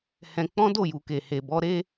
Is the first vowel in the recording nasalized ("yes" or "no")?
yes